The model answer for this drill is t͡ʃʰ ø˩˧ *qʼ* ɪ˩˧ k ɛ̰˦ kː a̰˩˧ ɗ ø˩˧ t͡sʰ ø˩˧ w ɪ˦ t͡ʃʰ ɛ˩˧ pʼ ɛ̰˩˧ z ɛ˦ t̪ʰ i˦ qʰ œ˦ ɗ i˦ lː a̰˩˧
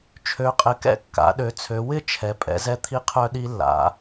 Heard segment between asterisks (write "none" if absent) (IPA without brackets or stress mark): qʼ